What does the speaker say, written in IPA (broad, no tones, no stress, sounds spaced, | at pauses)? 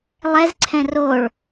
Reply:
lˠ ɛ z ǀʰ ɛ̃ r o ɭ